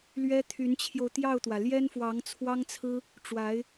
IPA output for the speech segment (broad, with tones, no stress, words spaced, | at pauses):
lɥɛ˥t̪ʰy˧˥nt͡ɕʰjo˧ʊ̯ t̪jɑ˥˩ʊ̯t̪wä˩ ljɛ˥nfwɑ˧˥ŋt͡sʰwɑ˥ŋt͡sʰɹ̩˥ | ʈ͡ʂwa˧˥ɪ̯